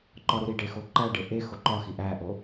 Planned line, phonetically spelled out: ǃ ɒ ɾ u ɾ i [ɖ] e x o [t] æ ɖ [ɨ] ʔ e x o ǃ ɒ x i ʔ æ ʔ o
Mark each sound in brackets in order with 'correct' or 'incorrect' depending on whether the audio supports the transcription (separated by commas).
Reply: correct, incorrect, incorrect